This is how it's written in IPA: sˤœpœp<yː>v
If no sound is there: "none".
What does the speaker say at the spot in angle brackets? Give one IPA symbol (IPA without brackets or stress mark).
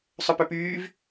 yː